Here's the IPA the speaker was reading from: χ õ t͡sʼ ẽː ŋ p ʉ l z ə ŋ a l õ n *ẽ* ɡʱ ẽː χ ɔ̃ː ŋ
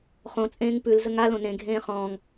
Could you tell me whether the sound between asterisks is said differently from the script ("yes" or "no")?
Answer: no